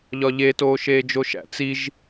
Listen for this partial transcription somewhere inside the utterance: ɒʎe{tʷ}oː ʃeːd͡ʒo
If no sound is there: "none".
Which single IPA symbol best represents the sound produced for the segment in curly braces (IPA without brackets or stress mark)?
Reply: t